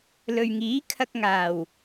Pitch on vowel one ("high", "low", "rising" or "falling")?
low